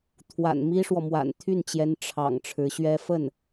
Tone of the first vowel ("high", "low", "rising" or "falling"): low